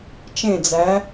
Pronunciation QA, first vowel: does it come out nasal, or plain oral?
nasal